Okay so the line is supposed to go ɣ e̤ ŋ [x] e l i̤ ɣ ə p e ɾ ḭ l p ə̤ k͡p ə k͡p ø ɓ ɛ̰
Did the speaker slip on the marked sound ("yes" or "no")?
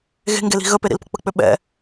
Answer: yes